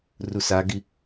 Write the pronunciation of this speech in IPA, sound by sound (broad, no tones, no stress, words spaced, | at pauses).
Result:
rusaɡi